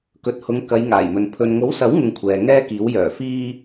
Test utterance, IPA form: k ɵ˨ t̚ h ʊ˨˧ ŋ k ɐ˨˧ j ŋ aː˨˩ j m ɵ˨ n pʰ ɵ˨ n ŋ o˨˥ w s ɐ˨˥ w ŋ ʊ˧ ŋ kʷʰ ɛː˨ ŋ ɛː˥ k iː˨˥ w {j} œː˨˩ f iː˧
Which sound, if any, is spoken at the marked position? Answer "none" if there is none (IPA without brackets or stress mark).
j